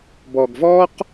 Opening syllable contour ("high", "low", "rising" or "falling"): low